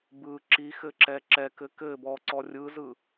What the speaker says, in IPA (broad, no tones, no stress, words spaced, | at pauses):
bɯ ǁixɘǁɛ ǁɛkɘ kɘ bɔǀɔ rʲɯzɯ